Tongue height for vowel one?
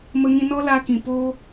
mid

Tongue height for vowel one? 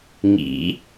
high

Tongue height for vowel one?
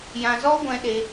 low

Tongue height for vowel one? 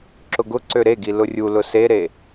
high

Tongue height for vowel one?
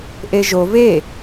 mid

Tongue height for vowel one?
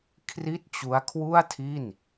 high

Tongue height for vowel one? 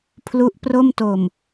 high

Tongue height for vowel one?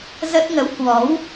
mid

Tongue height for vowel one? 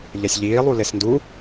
mid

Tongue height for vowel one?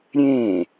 mid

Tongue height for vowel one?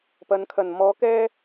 low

